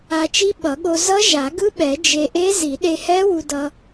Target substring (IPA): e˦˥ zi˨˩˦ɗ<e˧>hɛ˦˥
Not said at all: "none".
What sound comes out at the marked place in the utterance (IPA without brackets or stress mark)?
e˧